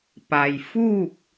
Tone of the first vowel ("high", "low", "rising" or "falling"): low